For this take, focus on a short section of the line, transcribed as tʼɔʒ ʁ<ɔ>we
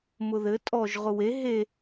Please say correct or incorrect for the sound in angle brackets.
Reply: incorrect